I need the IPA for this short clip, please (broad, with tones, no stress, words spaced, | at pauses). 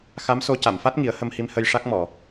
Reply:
xa˧˥mso˧ ca˨˩˨mfa˦˥t̚ ŋi˨˩˦ə̯hə˧mhi˧m hə˧jʂa˦˥k̚mɔ˨˩˨